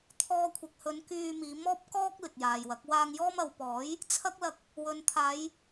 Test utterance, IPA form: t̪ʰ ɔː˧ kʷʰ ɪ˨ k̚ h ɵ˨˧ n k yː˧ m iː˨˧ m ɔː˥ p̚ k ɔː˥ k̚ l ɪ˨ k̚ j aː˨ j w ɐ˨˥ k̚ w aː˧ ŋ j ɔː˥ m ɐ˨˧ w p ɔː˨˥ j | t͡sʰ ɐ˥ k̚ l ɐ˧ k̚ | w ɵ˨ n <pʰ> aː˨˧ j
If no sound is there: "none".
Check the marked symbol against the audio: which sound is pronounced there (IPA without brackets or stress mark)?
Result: t̪ʰ